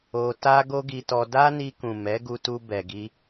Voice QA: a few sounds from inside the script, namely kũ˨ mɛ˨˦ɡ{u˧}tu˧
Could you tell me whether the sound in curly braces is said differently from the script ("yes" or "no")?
no